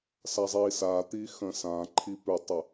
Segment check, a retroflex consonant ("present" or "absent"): absent